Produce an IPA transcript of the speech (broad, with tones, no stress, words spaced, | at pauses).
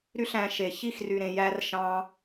ɾy˦ɬæ̃˧ʃe˨ çi˦˨xry˨ ɾẽ˨jæ˧r ʃɑ̃˧